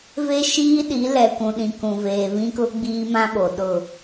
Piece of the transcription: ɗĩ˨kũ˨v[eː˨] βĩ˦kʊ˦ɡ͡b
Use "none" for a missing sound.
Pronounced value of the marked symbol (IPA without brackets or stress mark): eː˨